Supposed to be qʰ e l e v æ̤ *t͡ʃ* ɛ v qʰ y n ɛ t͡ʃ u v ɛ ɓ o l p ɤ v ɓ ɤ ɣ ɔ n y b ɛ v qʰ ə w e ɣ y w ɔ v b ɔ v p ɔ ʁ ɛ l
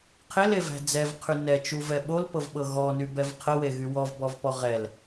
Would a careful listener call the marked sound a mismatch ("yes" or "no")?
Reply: yes